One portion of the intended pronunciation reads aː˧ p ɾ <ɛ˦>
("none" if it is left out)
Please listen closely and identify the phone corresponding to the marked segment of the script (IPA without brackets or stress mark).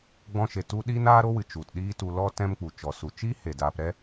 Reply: ɛ˦